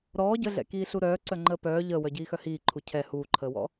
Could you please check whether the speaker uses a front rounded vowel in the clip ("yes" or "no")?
yes